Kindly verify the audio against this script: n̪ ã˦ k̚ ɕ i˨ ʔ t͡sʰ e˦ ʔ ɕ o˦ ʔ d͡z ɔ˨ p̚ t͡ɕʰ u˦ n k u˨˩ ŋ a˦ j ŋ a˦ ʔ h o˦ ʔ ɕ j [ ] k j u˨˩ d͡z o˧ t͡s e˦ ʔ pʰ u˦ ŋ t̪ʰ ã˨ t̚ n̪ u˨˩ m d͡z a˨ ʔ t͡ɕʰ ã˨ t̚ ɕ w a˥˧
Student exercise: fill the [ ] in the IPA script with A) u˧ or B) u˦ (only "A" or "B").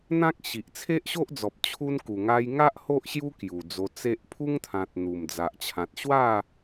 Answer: B